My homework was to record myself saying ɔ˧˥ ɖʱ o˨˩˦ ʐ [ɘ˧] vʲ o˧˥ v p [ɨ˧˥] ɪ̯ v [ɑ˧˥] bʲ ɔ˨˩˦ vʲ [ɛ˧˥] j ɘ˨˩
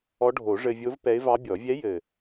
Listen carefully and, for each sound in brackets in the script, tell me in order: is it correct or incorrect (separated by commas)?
correct, incorrect, correct, correct